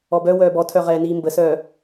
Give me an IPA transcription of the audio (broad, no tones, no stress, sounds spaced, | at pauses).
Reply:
ɔ b œ w œː b ɔ tʰ œ ʁ ɛː n iː m b ə s œː